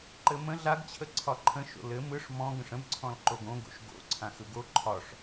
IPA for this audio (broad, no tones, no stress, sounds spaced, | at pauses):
ǃ ɘ m ə̃ ɮ a ɡ t͡ɕʰ ə ǀʰ ɒ ǃʰ ə̃ ʃ o̰ l ɘ m ɯ ʂ m ɔ̃ ɡ ə̃ ʂ ə̃ b ǀʰ ɔ̃ l ǃ o ɡ õ ɡ o̰ ʃ ɡ o̰ ǀʰ ã x ɯ ɡ o ǃʰ ɒ ʂ